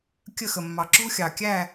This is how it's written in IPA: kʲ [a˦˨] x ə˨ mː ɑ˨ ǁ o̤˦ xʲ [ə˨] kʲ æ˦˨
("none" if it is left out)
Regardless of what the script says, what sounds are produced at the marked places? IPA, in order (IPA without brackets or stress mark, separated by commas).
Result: ə˦˨, ɑ˨